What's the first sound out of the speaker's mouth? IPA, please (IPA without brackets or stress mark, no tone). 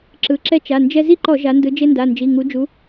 ǁ